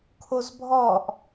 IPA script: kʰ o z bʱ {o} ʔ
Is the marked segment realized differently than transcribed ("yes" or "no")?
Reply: yes